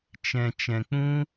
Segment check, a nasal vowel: present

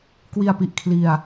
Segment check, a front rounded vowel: absent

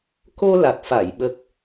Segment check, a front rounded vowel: absent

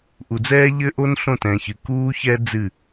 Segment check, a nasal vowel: present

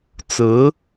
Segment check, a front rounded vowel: absent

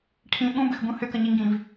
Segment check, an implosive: present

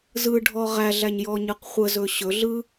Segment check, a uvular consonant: present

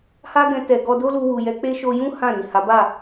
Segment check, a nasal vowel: present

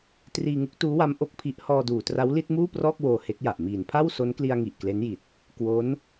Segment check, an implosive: absent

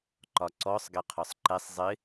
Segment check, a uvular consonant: present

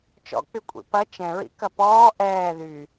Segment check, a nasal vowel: present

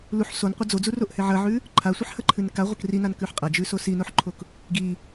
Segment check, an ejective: present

